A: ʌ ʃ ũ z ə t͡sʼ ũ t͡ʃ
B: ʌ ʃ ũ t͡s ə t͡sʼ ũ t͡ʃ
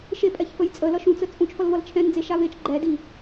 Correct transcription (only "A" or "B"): B